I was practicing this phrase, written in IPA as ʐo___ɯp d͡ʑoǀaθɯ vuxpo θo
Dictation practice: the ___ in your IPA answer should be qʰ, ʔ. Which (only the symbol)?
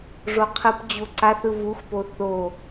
qʰ